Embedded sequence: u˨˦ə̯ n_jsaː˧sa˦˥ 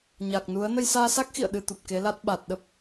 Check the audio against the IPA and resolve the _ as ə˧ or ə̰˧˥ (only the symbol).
ə˧